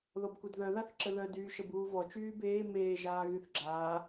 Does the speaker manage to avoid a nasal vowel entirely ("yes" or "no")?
yes